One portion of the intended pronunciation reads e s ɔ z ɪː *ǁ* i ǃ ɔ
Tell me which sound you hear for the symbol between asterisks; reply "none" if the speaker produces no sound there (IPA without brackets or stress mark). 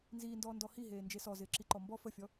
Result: ǁ